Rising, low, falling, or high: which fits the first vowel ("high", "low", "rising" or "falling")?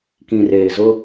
low